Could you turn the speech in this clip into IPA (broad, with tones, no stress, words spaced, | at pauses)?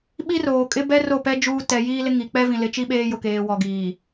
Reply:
ɓi˦roː˨kʼɪ˦bɛ˦ ro˦˨pɛ˦ d͡ʒuː˦ tɛ˨jiː˦lɪ˦ ŋi˨ k͡pɛ˦vĩ˨lɪ˨t͡ʃi˦ ɓeː˦jʊ˨keː˨ wɔ˨ɡiː˨